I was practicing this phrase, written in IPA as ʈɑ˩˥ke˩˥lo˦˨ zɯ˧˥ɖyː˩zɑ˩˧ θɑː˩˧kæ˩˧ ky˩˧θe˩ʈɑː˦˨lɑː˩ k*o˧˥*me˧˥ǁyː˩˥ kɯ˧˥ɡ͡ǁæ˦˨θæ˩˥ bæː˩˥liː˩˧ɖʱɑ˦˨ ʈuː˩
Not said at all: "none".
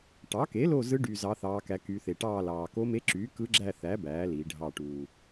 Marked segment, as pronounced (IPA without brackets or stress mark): o˧˥